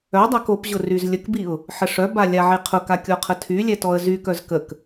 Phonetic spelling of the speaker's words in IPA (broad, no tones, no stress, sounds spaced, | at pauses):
œ dˤ a k o p ʑ ʊ r y z lʲ ə k b i ʊ̯ | ħ ə ʂ œ b a lʲ a ʕ e qʰ ʊ k a kʲ ɔ qʰ ə tʰ y lʲ ɛ t ɔ ə̯ z y k œ z k ə k